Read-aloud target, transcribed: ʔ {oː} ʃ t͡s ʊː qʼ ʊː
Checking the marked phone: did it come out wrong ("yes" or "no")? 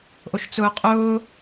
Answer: yes